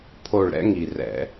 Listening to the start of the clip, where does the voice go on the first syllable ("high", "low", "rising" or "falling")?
falling